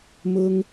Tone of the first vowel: high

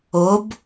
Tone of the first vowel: rising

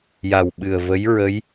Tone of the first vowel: low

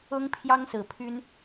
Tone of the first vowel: high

